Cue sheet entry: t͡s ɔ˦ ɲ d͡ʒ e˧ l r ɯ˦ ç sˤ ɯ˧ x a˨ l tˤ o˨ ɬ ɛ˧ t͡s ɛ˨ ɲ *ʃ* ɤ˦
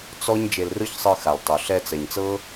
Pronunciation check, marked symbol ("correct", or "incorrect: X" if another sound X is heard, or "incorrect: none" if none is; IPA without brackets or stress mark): incorrect: t͡s